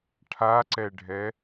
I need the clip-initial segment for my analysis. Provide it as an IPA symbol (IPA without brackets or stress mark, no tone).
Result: ʈʰ